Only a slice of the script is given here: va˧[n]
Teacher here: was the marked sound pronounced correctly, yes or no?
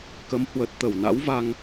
no